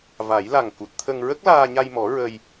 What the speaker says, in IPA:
va˨˩˦j la˨˩ŋku˨˩t̚t̪ʰə˧ŋ ɹə˦˥k̚laː˧ɲa˧jmɔ˨˩˦ ɹə˧j

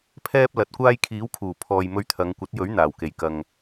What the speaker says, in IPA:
pʰɛː˥p̚lɐ˨˥t̚kʷaː˥j kʰiː˨˥wkʰuː˨˩ pʰɔː˨j mɵ˧ɥt̪ʰɐ˨˧ŋkʷɐ˨˥t̚jɵ˨˥ɥ n̪aː˨˩wke˨˩j kɐ˨ŋ

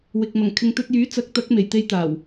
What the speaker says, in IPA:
wɪ˨k̚ mɐ˨˩ŋkʰɪ˨ŋt̪ɵ˧t̚jyː˨˥ t͡sɐ˨˥k̚t̪ɐ˨˥k̚ me˨˩j t̪e˧jt̪aː˨˩w

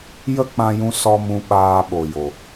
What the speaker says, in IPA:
jə˦ k͡pã˧jũ˧ sɔ˦ mũ˧ ɓaː˧ɓo˨jo˨

